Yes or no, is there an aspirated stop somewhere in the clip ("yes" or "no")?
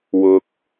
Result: no